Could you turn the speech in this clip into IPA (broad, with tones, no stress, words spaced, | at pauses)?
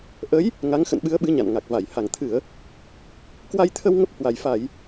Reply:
ʔə˨˦j | ŋa˨˦ŋxə̰˧˨nɓɨ˨˦ə̯ɓɨ˨˦ ɲa̰˧˨nŋa˨˩k̚va˧˩j ha˧˩ŋt̪ʰɨ˧˩˨ə̯ | kwa˧jt̪ʰə˧w ŋə˦˥p̚hwa˨˩jfa˧˩˨j